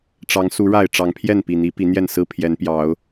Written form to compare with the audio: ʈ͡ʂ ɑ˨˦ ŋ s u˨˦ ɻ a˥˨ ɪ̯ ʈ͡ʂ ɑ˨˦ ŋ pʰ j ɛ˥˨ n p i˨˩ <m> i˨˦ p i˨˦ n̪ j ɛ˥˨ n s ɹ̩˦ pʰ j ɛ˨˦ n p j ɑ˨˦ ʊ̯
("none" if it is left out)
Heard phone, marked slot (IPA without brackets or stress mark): n̪